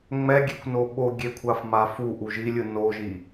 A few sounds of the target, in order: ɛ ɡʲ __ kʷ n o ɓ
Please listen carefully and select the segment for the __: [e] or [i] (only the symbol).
e